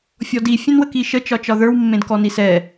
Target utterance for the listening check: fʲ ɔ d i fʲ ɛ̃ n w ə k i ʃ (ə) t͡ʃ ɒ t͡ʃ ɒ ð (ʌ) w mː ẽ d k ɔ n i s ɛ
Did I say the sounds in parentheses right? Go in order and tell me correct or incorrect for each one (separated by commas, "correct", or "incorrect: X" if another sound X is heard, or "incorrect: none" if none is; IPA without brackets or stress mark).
correct, incorrect: ə˞